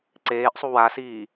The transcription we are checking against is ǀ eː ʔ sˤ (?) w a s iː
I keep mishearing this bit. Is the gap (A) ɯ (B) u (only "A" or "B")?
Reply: B